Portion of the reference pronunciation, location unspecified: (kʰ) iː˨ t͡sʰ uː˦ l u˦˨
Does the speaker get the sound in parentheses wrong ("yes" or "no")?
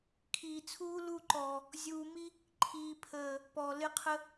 no